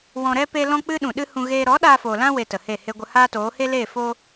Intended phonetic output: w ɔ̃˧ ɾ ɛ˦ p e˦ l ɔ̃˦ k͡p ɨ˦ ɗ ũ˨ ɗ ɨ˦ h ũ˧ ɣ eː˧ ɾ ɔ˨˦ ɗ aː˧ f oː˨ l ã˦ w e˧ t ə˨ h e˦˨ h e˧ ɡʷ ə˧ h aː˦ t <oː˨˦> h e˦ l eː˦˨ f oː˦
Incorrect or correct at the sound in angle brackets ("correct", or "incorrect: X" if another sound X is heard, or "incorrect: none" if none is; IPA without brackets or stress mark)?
correct